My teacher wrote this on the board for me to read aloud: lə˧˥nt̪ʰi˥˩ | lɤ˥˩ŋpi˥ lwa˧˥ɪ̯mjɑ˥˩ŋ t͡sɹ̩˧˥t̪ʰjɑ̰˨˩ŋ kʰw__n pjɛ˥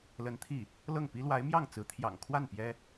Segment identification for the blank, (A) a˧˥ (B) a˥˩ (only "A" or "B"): B